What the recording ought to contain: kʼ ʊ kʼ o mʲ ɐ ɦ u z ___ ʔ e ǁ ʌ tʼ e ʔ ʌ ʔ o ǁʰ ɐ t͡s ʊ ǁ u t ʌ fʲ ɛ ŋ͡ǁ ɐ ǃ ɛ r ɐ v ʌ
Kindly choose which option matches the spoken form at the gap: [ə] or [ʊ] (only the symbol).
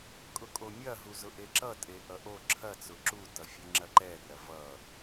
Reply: ʊ